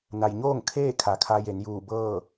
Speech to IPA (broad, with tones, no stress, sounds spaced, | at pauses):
n a˩ j ɲ oː˥˨ ŋ kʰ eː˥˨ kʰ a˩ kʰ a˧ j e˩˧ n j uː˧˩ b ɤː˥˨